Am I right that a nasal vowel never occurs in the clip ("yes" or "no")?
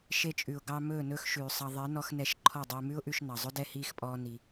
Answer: yes